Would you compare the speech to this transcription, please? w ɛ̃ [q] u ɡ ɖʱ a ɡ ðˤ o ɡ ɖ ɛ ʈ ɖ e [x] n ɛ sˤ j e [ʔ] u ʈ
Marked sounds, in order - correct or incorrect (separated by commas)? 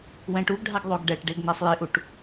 incorrect, incorrect, correct